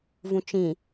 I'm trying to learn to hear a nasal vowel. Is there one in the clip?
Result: yes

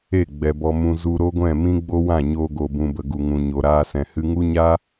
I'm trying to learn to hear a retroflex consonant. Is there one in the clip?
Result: no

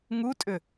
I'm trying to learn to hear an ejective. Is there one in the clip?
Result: yes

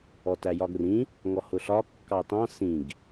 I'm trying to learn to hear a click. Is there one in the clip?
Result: no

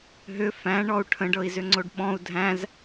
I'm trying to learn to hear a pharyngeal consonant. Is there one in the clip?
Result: no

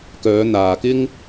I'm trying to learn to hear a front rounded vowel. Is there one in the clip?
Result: yes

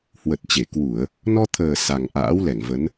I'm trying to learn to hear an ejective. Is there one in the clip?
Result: no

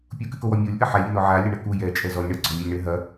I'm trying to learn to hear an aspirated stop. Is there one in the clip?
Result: no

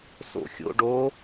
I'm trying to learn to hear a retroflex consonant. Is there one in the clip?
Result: yes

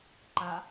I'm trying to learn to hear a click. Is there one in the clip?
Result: yes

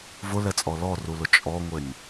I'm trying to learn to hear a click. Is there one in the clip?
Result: no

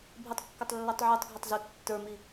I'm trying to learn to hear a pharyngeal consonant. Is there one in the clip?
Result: yes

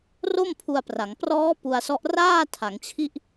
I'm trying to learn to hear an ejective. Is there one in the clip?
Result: no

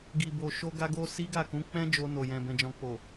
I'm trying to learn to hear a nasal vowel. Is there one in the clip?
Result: yes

